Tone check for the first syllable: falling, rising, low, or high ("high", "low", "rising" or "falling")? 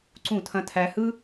falling